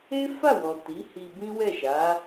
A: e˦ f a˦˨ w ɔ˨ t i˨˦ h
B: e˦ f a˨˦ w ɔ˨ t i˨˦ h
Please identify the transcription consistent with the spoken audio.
A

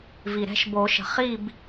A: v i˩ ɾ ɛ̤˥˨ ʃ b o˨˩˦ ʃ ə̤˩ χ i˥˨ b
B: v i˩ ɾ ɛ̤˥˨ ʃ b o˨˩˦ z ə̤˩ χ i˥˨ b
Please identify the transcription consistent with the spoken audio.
A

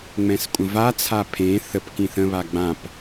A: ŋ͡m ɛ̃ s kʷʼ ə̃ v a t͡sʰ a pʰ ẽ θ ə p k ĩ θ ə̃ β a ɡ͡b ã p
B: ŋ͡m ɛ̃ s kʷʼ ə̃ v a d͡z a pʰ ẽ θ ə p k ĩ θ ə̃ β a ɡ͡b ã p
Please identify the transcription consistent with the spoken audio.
A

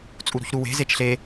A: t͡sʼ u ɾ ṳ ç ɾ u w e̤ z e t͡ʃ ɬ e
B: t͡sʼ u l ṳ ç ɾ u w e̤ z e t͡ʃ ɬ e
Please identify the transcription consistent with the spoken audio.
A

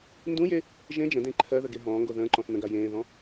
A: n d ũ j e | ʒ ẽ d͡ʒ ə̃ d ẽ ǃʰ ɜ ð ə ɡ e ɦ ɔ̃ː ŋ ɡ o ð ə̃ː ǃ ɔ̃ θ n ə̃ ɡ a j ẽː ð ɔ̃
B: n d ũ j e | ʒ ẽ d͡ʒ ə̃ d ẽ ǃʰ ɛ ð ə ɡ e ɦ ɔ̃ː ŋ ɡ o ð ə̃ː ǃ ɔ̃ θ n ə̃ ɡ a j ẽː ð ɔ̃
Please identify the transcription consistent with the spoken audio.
A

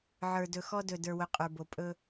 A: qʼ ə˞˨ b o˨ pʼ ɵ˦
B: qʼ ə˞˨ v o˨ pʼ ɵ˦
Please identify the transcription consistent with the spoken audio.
A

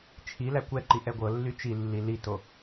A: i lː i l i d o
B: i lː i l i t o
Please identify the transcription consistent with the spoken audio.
B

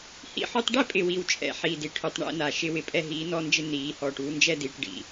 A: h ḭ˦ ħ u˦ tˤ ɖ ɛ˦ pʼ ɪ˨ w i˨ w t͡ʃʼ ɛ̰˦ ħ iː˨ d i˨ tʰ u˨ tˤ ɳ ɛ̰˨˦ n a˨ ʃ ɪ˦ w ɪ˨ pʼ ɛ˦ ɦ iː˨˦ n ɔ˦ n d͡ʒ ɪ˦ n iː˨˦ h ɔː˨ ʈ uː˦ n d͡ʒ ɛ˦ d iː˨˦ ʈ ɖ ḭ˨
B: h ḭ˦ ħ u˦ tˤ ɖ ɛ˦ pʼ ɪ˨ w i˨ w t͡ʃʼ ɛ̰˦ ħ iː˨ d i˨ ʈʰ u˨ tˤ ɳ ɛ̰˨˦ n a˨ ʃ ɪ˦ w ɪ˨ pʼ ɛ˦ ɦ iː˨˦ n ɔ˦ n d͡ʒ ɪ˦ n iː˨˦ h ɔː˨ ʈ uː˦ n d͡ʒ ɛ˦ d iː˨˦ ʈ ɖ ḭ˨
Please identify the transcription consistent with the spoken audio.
B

